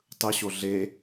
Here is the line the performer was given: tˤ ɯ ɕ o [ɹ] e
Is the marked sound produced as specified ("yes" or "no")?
no